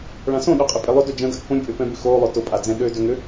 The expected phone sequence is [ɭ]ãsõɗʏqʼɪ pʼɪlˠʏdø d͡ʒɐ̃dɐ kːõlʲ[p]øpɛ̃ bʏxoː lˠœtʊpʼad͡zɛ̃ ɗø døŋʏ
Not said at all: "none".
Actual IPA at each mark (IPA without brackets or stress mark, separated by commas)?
ɭ, pʼ